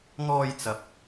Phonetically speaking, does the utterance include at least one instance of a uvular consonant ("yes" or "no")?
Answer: no